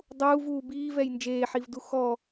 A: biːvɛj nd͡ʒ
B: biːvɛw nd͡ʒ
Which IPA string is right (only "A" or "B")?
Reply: A